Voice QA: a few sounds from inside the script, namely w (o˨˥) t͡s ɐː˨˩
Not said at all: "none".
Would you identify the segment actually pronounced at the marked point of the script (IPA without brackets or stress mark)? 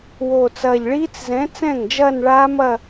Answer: o˨˩